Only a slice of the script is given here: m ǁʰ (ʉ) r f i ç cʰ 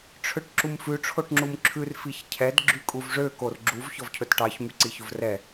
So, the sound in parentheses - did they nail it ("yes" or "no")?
yes